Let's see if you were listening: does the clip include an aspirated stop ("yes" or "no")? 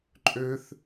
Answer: no